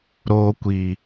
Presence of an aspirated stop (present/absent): absent